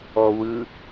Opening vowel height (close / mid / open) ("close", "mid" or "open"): mid